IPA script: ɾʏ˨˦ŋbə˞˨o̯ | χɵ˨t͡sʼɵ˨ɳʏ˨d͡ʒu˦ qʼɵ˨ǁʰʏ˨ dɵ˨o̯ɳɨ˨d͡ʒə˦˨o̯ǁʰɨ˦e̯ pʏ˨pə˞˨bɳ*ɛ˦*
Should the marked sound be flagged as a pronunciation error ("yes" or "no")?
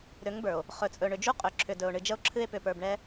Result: no